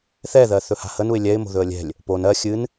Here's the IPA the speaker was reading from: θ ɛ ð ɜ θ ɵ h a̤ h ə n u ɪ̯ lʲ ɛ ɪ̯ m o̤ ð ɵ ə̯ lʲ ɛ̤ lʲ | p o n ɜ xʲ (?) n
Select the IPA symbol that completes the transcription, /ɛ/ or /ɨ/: ɨ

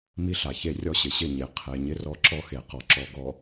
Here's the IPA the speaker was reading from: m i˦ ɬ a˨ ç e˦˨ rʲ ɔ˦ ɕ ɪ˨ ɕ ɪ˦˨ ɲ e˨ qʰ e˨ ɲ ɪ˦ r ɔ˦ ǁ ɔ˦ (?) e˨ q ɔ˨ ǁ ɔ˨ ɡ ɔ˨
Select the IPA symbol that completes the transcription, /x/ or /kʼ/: x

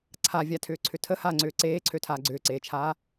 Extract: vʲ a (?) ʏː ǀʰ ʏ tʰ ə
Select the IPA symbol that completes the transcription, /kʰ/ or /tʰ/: tʰ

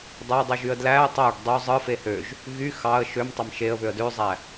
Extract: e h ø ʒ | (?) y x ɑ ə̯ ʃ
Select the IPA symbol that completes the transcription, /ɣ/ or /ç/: ɣ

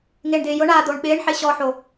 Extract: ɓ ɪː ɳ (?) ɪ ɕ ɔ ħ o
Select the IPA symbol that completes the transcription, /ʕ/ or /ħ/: ħ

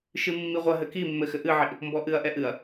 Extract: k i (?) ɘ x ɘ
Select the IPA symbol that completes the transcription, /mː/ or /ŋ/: mː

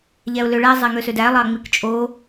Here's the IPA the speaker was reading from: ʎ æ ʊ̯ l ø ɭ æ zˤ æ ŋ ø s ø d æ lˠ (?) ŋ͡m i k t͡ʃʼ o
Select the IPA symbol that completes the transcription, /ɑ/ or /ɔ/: ɑ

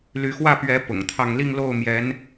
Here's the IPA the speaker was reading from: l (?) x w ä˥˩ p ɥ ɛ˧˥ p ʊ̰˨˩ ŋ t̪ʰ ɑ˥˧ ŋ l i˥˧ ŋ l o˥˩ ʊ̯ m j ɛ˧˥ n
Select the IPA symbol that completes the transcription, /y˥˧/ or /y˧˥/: y˧˥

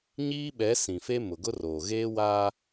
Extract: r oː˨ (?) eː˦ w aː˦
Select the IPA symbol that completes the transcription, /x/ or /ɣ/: ɣ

